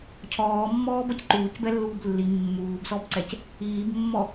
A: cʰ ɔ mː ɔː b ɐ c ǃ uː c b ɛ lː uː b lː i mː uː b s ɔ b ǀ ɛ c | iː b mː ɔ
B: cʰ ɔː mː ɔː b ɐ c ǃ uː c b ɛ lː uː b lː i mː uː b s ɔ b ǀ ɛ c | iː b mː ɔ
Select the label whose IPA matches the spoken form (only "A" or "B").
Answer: B